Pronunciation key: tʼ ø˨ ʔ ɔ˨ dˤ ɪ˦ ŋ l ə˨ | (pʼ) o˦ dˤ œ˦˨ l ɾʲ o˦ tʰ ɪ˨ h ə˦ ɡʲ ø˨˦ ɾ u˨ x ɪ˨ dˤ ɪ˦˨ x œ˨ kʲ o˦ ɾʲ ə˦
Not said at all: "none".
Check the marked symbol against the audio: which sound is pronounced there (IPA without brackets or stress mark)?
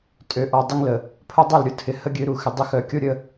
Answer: pʰ